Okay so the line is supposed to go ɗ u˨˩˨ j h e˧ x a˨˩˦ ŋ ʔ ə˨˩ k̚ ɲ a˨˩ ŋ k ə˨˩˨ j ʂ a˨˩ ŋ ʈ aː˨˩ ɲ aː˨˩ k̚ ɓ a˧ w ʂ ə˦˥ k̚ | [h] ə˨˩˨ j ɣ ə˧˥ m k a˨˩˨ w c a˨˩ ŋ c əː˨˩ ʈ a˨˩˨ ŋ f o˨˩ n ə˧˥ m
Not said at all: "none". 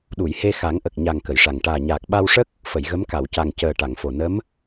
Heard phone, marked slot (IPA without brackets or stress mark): f